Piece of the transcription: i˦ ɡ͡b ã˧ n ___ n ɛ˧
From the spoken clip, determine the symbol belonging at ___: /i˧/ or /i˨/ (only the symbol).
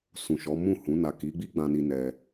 i˧